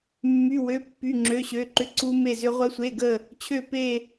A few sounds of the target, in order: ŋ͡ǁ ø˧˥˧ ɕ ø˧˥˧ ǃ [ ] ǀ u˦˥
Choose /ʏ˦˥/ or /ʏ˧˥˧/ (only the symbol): ʏ˦˥